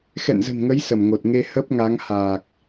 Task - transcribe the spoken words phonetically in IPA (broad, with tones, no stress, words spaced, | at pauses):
xɛ̰˧˨nzə̤˨˩nŋə˨˦j sə˧˩mŋo˨˩t̚ ŋe˧ hə˦˥p̚ŋa˨˦ŋhaː˨˩k̚